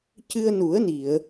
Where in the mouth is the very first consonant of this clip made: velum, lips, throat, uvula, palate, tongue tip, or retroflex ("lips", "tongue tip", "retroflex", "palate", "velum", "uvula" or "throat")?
palate